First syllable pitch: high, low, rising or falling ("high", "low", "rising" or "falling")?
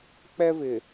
high